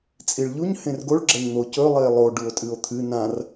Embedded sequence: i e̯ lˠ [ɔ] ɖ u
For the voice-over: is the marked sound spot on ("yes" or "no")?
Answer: no